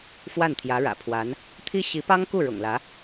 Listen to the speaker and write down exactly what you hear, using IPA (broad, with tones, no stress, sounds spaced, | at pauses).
f w a˥˩ n t̪ʰ j ä˧˥ ɻ ä̰˨˩ pʰ w a˧˥ n | t̪ʰ i˥ ɕ i˧˥ p ɑ˥ ŋ k u˥˩ ɻ ʊ̰˨˩ ŋ l ä˧˥